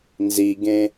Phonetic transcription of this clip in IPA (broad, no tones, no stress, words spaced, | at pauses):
nziɡẽ